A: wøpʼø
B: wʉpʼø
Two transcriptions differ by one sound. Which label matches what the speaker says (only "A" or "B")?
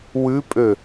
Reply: B